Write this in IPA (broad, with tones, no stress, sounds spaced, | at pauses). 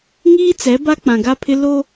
ŋ iː˦ t͡s ɛ˨˦ b a˦ k͡p ã˨ ɡ a˦ pʰ ɪ˦ l o˦